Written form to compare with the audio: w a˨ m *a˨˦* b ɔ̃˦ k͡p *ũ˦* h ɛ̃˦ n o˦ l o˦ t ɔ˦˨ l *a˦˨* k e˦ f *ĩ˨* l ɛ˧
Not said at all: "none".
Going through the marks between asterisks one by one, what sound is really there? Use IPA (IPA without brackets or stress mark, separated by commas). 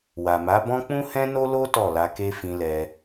a˨˦, ũ˦, a˧, ĩ˧